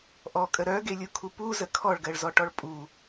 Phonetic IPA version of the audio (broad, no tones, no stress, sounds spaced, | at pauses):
ʔ ɔ kʼ ə ɾ œ ɡ e lʲ u kʰ u p u z ə kʰ ɔ ɭ ɡ ɜ ɭ z ɔ ʈ ɔ ɭ pʼ u